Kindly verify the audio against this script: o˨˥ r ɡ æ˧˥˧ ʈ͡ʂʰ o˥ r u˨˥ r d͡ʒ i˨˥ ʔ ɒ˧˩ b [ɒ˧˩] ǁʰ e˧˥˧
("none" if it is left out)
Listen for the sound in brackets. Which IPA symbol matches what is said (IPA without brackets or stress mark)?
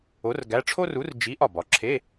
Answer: ɒ˩˧